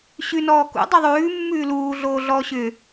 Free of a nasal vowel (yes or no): yes